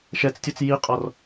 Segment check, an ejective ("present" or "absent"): present